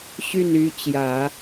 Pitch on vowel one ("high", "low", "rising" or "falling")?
falling